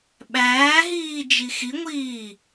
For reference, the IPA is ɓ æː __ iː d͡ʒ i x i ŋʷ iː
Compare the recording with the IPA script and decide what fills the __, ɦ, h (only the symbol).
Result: ɦ